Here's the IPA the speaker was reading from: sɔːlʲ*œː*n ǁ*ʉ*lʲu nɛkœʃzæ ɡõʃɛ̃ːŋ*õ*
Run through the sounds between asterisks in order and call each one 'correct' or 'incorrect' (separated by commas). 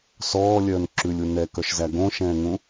correct, correct, incorrect